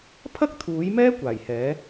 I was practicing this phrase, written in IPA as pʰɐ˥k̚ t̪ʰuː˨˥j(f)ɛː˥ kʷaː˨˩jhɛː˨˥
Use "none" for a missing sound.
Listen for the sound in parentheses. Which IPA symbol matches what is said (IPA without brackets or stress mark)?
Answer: m